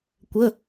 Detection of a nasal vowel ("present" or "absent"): absent